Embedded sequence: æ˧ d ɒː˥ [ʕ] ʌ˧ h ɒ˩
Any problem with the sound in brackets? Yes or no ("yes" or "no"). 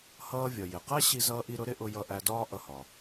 yes